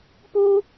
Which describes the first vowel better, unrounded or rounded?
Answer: rounded